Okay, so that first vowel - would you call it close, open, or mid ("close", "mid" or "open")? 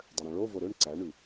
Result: mid